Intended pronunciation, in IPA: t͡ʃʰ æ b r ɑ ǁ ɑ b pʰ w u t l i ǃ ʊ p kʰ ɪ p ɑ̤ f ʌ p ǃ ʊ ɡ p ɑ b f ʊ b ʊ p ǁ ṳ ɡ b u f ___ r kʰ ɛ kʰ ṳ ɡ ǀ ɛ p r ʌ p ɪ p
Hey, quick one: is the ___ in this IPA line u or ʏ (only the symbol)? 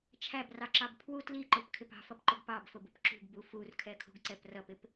u